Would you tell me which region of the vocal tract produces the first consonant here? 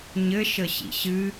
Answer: palate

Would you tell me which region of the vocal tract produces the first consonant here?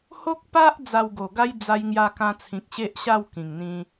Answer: throat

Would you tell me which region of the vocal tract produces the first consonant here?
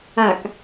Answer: velum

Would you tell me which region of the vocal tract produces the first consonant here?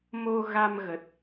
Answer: lips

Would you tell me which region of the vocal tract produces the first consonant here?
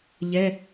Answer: palate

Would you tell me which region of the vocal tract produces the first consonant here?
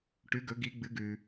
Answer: retroflex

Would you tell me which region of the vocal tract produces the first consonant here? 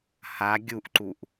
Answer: throat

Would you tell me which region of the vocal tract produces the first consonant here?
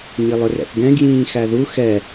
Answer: palate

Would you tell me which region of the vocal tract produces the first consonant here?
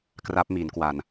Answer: velum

